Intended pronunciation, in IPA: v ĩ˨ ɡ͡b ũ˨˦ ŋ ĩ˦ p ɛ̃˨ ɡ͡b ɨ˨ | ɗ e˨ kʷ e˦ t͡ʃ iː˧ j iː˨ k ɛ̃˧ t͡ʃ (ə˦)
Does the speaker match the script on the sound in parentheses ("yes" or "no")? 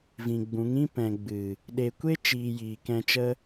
yes